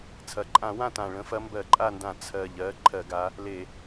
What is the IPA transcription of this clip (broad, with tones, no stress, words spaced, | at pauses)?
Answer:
t͡sʰɐ˨˩ǃʼã˧˩˧wã˦˨tã˨˩ ɭə̃˨˦fɐ˨˦mbɜ˧˩˧ ǃʼa˦˨ndã˧˩˧ t͡sʰɜ˨˩ʎɜ˨˦ ǃʰɜ˧˩˧ɡa˨˦ | le˧˩˧